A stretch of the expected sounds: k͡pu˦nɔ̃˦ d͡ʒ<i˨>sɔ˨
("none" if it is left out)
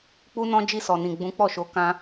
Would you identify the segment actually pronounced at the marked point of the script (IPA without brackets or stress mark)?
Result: i˧